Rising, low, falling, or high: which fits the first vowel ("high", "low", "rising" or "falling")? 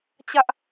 high